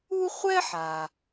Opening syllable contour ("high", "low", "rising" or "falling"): high